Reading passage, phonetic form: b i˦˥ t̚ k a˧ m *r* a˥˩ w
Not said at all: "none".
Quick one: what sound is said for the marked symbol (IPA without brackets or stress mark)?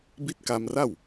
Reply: r